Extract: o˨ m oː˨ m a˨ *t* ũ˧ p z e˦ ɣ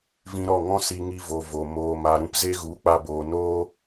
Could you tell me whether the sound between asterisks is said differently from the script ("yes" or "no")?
yes